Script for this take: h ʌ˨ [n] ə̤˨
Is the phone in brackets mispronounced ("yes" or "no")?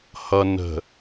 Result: no